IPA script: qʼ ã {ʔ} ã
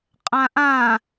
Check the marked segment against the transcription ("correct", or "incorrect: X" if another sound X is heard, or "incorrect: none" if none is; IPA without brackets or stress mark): correct